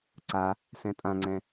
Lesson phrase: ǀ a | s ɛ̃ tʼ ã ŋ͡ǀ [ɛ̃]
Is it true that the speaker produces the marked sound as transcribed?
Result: yes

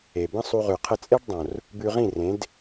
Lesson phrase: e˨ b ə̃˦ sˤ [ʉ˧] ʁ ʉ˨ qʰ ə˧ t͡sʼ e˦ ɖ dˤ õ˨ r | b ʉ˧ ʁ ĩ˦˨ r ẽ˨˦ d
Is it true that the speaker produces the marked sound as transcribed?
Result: no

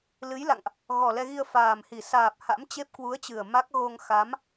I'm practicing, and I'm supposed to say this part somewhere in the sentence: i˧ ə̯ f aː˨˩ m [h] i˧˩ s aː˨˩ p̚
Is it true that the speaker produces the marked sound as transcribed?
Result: yes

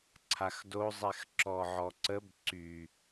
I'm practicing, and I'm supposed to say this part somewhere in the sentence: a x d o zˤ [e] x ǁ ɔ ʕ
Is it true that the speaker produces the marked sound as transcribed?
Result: no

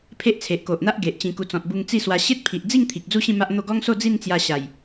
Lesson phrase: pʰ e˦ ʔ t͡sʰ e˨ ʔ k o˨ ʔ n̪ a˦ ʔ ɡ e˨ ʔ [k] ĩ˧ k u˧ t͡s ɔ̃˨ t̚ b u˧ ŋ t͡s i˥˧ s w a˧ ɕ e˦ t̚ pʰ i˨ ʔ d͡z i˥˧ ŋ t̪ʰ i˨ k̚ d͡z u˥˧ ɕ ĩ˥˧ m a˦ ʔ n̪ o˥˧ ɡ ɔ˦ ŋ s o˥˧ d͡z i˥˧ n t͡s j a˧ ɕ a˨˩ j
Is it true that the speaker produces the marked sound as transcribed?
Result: no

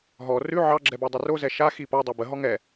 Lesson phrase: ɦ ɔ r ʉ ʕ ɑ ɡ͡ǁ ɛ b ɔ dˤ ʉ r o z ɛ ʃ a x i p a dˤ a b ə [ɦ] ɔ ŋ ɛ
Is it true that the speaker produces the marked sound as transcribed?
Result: yes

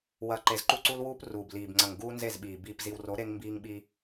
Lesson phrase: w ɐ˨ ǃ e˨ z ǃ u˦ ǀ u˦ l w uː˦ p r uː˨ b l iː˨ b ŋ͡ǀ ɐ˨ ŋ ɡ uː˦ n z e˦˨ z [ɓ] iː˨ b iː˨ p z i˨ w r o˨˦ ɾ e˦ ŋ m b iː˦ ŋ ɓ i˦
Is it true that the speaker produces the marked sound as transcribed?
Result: yes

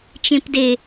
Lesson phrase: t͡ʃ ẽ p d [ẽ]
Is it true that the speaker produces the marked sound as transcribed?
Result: no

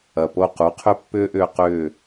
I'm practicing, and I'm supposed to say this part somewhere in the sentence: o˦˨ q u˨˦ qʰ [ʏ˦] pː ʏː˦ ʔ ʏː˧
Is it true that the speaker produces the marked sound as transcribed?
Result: yes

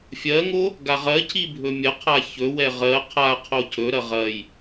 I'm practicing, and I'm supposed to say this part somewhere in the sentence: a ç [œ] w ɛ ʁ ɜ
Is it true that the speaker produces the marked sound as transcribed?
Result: no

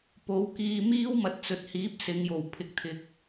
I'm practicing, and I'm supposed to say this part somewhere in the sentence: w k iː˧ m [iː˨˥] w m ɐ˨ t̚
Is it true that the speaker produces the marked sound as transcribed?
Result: no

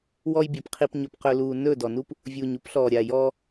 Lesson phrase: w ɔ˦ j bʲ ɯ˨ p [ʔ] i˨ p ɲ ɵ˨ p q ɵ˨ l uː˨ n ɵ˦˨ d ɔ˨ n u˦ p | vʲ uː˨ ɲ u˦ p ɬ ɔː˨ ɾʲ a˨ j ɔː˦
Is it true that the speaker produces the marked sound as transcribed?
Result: no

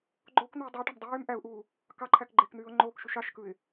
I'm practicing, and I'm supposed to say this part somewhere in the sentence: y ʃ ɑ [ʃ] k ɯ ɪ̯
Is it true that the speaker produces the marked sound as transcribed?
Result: yes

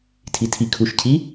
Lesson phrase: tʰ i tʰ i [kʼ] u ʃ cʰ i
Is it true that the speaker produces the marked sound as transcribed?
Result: no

